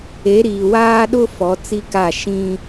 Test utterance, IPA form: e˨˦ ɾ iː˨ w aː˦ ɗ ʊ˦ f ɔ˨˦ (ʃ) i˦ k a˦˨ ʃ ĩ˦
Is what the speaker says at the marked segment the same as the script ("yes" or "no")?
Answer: no